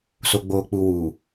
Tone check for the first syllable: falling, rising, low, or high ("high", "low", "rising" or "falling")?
low